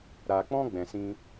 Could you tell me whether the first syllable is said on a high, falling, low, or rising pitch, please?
low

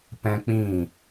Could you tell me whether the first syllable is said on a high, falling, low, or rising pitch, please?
high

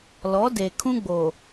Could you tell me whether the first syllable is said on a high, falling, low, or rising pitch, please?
rising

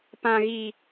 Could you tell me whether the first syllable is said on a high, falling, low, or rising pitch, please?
low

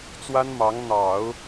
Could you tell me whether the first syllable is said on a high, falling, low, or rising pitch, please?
high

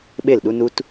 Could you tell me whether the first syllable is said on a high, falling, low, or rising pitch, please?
falling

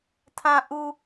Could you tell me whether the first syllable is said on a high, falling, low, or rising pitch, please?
low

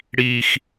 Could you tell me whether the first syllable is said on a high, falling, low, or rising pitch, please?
high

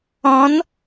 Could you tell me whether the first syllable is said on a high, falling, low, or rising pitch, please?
rising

